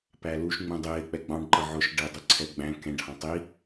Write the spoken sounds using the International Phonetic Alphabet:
pæluʃ ŋ͡mũdˤɪː k͡pɛɡ͡bɑ̃ɖǃʌ ʕʊʃ ɖɪːdˤɪǀʰɛɡ͡bæ̃ kɛ̃ɖhɑ̃ tˤi

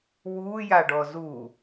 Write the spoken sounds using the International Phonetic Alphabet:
wuːjaɖɔ zu

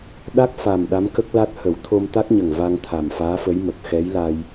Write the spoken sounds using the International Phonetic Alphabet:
ɗa˦˥k̚fa˨˩m ɗa˧˥mkə˦˥k̚la˦˥t̚ hə˨˩˦wt̪ʰo˧mt̪a˦˥k̚ɲə˨˩ŋ va˧ŋt̪ʰa˨˩mfaː˧˥fə˧˥j mə˨˩k̚xɛ˧˥jla˧j

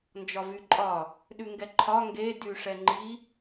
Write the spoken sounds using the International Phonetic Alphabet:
nd͡ʒɒvyǃʼɒ | ɗʉŋɡɛǃʰɒ ŋɡe dyʂɛŋ͡ǃi

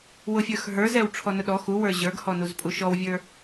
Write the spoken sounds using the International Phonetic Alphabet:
wʊfʲə˞xɦə˞z ɛwʈ͡ʂʰɔnʊɗɔ xuwə˞ ʑə˞ɡhɔnuz pʼuʃɔwvʲə˞

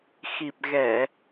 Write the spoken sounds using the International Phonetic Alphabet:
xi˨˩p̚ ɣɛ˧˩˨

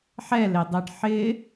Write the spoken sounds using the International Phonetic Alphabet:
ħɛledˤɛɖ ħɪ

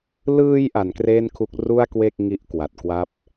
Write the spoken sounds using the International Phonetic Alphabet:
lɯː˧j ʔa˩˦nkreː˥˩nkʰu˦˥k̚ ru˥˩a̯kwe˥˩k̚ ŋi˦˥ʔkwa˨˩t̚ kwa˦˥p̚

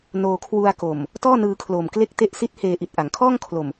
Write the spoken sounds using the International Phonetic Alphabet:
noː˧kʰwu˧a̯ko˨˩m | tɔː˥˩nɯː˧kʰloː˨˩m kle˥˩k̚te˥˩ʔ si˦˥t̚ heː˧ʔi˨˩t̚ ʔa˩˦ŋkʰɔː˥˩ŋ kʰlo˨˩m

